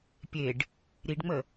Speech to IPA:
pʲ e ɖ | ɾ i ɖ ŋ͡m ə

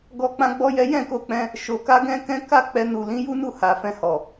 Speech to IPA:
ɡ ɔ˦ k͡p ã˦ ɡ͡b ɔ˦ j ɛ˦ j ɛ̃˦˨ k o˧ k͡p ɛ̃˧ | ʃ o˧ k a˦ ɡ ɛ̃˦ k ɛ̃˦ k a˦ k͡p ɛ˧ n u˨ l ĩ˨˦ j u˦ n u˦˨ h a˨ f ɛ̃˧ h ɔ˨

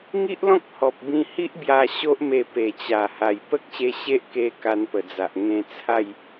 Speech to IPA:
ŋ i˦ ʔ l ɔ̃˦ k̚ h ɔ˨ p̚ b ĩ˧ h i˦ ʔ b j a˧ ɕ o˦ ʔ m e˧ p e˨˩ t͡ɕ a˨˩ h a˨˩ j p ə˦ k̚ ɕ e˧ ɕ e˦ ʔ k e˧ k a˧ n p ə˨˩ d͡z a˨ ʔ ŋ ẽ˧ t͡sʰ a˥˧ j

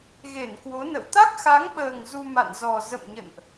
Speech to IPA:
ɣ e˧˩ n k w o˨˦ n ə̰˧˨ w t̪ a˦˥ k̚ x a˨˦ ŋ ɓ əː˨˩ ŋ z u˧ m a̰˧˨ n z ɔ˨˩ z ə̰˧˨ m ɲ ə̰˧˨ n ʔ

